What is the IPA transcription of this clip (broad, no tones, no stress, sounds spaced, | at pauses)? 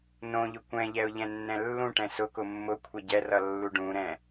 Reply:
n õ ʎ ʊ kʷ ɛ̃ ʎ ɛ ʊ̯ ʎ ɛ̃ nː ɛ̃ lː ũ ʈ ɛ̃ s ʊ k ʊ mː ʊ kʷʰ ɛ ɟ ɛ r ʌ lː u ɖ ũ ɾ ɛ̃